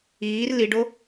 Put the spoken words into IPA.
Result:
iː r l i ɖ o

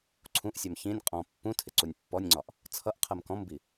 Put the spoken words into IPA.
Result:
ǀʰ ũ ʔ sʲ ɛ m ç ĩ nʲ qʼ ɔ̃ pː ũ tʰ ɪ ǀ u nʲ pː ɔ nʲ ŋ͡ǀ ɒ ʔ | t͡sʰ ʌ ʔ qʰ ɜ m k ɔ̃ m b i

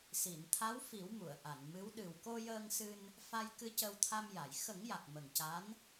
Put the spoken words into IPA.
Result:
s i˨˩˨ n t̪ʰ a˧˥ w f i˨˩˦ w m u˨˩˨ ə̯ ʔ a˨˩˨ n m ɨ˧˥ w ɗ ɨ˨˩ w k o˧ j əː˧ ŋ s ɨ˧ n | f a˧ j k ɨ˧ c ə˧ w t̪ʰ a˧ m j a˨˩˨ j x ə˨˩˦ ŋ j a˨˩ k̚ m ə˨˩ ŋ c a˧˥ n

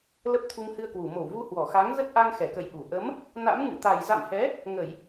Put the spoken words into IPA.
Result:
l ə˦˥ p̚ t̪ʰ u˧ ŋ h ɨ˧ ə̯ k w u˧˩ m o˧˩ w v u˧ h w ɔ˧˩ x a˨˦ ŋ z ə˦˥ t̚ ʔ a˧ ŋ x ɛ˧˩ k ə̰˧˨ j ʔ u˧˩ ʔ ə˨˦ m | n a̰˧˥ m ŋ ɨ̰˧˨ t̪ a˨˩ j z a̰˧˨ m h ɛ˨˦ | ŋ ə˧˩˨ j

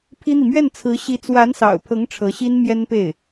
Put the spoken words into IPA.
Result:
pʰ i˥ n̪ i˨ m ɥ ɛ˥˩ n t͡sʰ ɹ̩˧˥ ɕ i˧˥ t͡s w a˧˥ n s ɑ̰˨˩ ʊ̯ pʰ ɤ˧˥ ŋ ʈ͡ʂʰ ɤ˧˥ ɕ i˥ n m j ɛ˥ n p e˥˩ ɪ̯

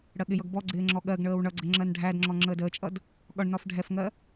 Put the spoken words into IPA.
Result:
ɽ ɜ ɠ ɪ j ʌ ɡ b ɔ ɡ͡ǀ ɪː ŋ͡ǁ ɔ ɠ ɜ ɡ ɳ əː w ɳ ʌ ɡ͡ǀ ə ŋ͡ǁ ɜ n ɖʱ æ d ŋ͡ǁ ɔ ŋ͡ǁ əː d əː t͡ʃʼ ʌ d | ɠ ɒ ɳ n ɒ f ɖʱ ɛ f ŋ ɜ

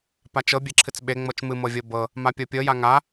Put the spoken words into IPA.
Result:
p a t͡ʃ ɤ bʲ e ǁʰ ɨ t͡s ɓ e ŋ͡m ɤ t͡ʃ m ɨ m ɤ vʲ ɤ b ɤ | m a pʲ ɤ pʲ ɤ j a ŋ a

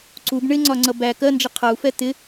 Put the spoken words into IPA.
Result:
ǀ u b ɳ ɪ ŋ͡ǀ ɒ ŋ͡ǀ ʌ b æ k ɜ n d͡ʒ ə qʰ ʌ u̯ f ɛ t̪ ɪ

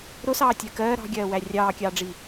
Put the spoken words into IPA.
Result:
ɾ ʊ s ɑː tʲ ɜ k ɜː ɾ ɑ̤ ɡʲ ɜː w æ rʲ ɑː kʲ ɑː ɖ͡ʐ i

